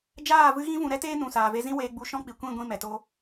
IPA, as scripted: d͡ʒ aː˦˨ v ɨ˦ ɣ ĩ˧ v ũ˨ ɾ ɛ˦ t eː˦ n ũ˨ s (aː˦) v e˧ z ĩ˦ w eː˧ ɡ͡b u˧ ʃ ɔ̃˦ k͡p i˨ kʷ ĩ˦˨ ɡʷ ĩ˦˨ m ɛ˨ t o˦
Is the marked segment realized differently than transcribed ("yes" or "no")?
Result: yes